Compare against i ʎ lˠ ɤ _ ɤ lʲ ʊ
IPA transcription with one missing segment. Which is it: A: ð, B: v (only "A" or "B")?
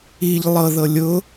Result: A